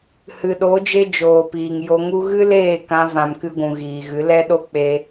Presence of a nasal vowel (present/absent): present